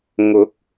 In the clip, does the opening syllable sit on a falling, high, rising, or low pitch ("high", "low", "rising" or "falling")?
rising